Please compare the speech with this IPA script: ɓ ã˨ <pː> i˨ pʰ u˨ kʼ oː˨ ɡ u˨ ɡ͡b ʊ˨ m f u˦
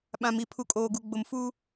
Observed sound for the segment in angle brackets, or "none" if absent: m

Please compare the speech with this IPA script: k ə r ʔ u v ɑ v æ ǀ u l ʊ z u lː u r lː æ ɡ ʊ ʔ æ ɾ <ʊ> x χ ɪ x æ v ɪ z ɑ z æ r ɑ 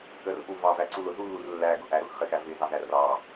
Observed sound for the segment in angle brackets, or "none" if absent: ʊ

